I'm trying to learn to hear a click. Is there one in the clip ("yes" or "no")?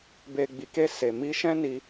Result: no